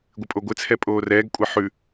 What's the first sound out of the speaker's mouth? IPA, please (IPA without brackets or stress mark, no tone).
ɡʷ